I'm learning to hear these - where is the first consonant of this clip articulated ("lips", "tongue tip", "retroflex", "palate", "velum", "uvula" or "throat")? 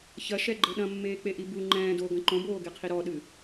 palate